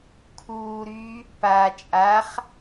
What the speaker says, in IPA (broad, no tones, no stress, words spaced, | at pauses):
kʰuːɾyː | pa t͡ʃʼaχ